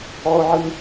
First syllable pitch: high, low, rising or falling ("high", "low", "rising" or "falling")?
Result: high